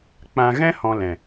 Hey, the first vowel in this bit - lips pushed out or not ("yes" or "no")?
no